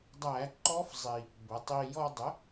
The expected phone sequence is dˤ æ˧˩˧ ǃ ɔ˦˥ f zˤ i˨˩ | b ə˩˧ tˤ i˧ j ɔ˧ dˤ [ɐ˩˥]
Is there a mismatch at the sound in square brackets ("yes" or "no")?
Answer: yes